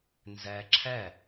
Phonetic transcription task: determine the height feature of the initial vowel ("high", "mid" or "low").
mid